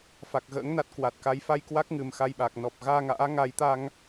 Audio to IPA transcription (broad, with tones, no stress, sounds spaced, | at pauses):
f a˨˩ k̚ ɣ ə̰ː˧˥ ŋ n a˨˩ t̚ k w a˨˩ t̚ k a˨˦ j f a˧ j k w a˦˥ k̚ ŋ ɨ˨˩ m x a˧ j ɓ a˨˩ k̚ n ɔ˨˩ p̚ ɣ aː˧ ŋ a̰ː˧˥ ŋ a˨˦ j t̪ a˧ ŋ